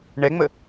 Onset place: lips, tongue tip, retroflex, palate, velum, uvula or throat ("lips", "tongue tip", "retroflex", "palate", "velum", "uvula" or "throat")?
retroflex